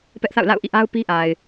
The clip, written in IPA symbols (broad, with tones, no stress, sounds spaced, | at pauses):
p ɛ˦ ʔ θ a̰˦˨ ʊ̯ l a̰˦˨ ʊ̯ ʔ ḭ˦˨ ʔ a˦ ʊ̯ p i˦ ʔ a˨ ɪ̯